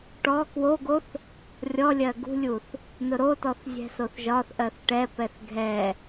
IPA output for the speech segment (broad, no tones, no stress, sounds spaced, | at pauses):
ʈ ɔ k w o ɡ o θ | rʲ ɔ lʲ ɜ ɡ ṳ lʲ u θ | n ʊ ɾ o t ɔ θ zʲ ɛ̤ s o θ ʒ ɒ θ ʔ ɜ θ ʈ ɛ p ɛ θ ɡʱ ɛ